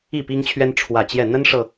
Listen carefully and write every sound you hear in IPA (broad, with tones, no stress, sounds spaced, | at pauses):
i˥˨ p i˦ ŋ t͡ɕʰ ɥ ɛ˦ n ʈ͡ʂʰ w ä˨˩ t͡ɕ j ɛ˥˨ n̪ ə˦ n ʂ ɤ˨˩